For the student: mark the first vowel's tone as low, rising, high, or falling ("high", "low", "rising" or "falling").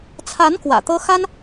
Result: rising